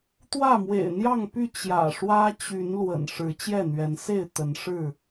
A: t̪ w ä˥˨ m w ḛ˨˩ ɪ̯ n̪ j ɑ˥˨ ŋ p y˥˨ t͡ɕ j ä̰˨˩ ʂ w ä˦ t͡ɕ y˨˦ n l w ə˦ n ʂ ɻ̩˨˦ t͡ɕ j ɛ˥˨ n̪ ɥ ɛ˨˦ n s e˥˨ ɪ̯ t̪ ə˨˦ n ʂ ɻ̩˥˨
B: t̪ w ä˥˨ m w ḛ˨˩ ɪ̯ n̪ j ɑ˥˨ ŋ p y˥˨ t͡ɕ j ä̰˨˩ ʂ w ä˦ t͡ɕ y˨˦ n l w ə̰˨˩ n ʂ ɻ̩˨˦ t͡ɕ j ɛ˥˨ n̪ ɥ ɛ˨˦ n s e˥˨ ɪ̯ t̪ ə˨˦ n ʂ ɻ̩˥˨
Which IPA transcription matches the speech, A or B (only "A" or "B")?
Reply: B